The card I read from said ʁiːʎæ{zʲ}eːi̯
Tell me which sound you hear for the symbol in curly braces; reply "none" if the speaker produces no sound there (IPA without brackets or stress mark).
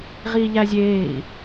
zʲ